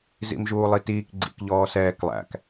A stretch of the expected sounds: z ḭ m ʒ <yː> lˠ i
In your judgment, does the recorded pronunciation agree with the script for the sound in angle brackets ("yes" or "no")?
no